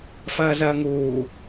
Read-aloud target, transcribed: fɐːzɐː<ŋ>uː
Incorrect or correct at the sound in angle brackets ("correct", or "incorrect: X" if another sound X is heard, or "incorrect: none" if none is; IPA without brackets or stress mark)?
correct